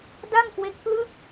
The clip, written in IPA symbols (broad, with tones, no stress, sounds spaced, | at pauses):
d a˥˩ ŋ k w e˦˥ k̚ p l ɯ˥˩ k̚